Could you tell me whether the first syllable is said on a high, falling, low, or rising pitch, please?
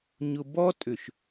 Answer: low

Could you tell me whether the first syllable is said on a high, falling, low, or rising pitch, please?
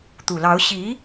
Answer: low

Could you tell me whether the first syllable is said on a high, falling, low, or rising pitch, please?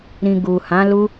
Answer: low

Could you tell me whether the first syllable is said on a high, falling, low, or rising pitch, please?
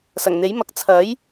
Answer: low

